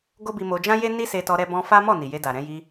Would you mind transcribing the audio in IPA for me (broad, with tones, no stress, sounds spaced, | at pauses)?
ɡ o˦ b i˧ m o˧ d͡ʒ ã˦ j e˦ n i˦ s e˧ t ɔ˧ ɾ ɛ˦ b ɔ̃˦ f a˦ m ɔ˦˨ n i˨ j e˧ d a˨ ɾ ɛ̃˨˦ j i˧